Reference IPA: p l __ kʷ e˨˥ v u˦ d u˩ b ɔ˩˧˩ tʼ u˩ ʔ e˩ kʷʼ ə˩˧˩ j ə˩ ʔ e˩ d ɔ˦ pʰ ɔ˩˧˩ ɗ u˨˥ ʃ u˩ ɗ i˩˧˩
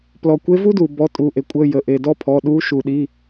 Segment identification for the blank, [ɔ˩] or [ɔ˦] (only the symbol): ɔ˩